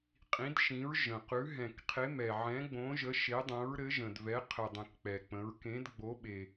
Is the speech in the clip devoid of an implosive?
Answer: no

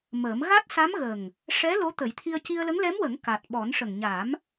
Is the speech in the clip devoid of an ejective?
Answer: yes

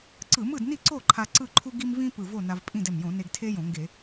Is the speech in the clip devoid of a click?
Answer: no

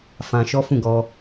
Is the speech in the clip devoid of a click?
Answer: yes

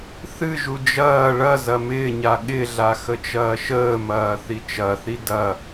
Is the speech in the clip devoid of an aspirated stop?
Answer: yes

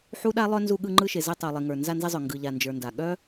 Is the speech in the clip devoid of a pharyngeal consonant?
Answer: no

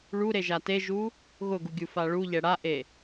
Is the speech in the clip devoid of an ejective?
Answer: yes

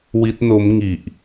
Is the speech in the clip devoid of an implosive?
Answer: yes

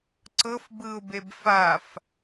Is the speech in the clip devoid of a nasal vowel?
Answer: yes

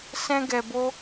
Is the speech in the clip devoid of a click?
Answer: yes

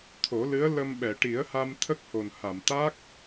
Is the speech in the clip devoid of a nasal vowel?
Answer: yes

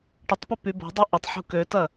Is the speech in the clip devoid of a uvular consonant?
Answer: yes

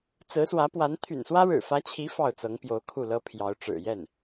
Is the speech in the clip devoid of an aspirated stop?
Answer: no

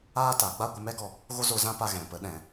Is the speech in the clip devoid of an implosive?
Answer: no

